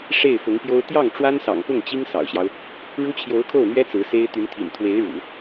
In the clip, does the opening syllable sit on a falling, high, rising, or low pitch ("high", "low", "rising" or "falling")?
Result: falling